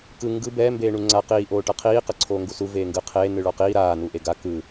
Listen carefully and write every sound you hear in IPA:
k ɯ ŋ ɡ ɯ b ɛ m b eː ɳ u ŋ͡ǀ a q iː ʔ oː ʈ ɤ qʰ iː q ɤ ǀʰ oː ŋ ɡ u s u v eː ŋ ɡ ɯ qʰ eː n ɯ ɭ ɔ q iː ɾ aː n u ʔ e ɡ a k ɯ

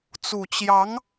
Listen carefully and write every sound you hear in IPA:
t͡s u˨˩ t͡ɕ j ɑ˧˥ ŋ

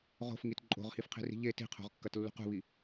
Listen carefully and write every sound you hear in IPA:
ʁ o̤ f ŋ i t ǃʼ o̤ ʁ h i f qʰ i̤ r i̤ ʎ e t i̤ qʰ o̤ ʁ kː ɐ t lː ṳ q ṳ β i

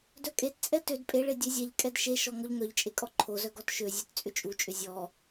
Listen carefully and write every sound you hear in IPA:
d œ kʼ e t t͡sʼ ɛ t ø d pʼ e ɭ e dʲ ø zʲ ɛ ʎ kʼ ɛ d ʃ e ʃ ɔ ŋ ɔ ʎ ŋ œ ʎ t͡ʃʼ e kʼ ɔ ǃʰ o z œ ɡ ɔ t ʃ ø zʲ ø t t͡sʼ ʏ t͡ʃʼ u t͡ʃʼ ʏ zʲ ɔ

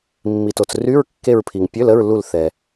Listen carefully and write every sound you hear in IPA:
mː i˩ t o˩ t͡s r y˧˥˧ ɹ kː e˦˨ ɹ pʰ i˩ ŋ pʲ ø˧˥˧ l ə˧˥˧ ɹ l u˦˨ l θ ɛ˩

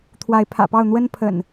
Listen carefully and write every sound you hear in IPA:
t̪ʰ w a˨˦ ɪ̯ pʰ ä̰˨˩ p ɑ˥˨ ʊ̯ n̪ w ə˦ n pʰ ə̰˨˩ n

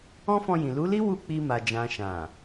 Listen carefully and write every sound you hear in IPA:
ɔ̃˦ f ɔ̃˧ j ĩ˨ l u˨˦ l i˦ w u˦˨ k͡p i˧ m a˨ d͡ʒ ã˨ ʃ ã˨

